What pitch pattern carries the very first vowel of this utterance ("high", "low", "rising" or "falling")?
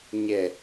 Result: low